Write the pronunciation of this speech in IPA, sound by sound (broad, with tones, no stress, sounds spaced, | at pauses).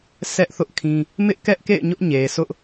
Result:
s ɛ˦ ʔ θ ʊ˦ ʔ kʰ ĩ˦ | m ɪ˦ ʔ k ɛ˦ ʔ k ḛ˦˨ ɪ̯ ɲ ʊ˦ ʔ ɲ e˨ sʰ ʊ˦ ʔ